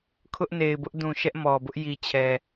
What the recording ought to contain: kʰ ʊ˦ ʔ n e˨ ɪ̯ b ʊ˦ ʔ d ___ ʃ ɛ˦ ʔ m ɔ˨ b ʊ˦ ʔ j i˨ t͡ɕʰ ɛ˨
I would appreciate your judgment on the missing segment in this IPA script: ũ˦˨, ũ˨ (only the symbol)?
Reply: ũ˨